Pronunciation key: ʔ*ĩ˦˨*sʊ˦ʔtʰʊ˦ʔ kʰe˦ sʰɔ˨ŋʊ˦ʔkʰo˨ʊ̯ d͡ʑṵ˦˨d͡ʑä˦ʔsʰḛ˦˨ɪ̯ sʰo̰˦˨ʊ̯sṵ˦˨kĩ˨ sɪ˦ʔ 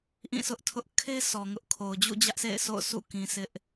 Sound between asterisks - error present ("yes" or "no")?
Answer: no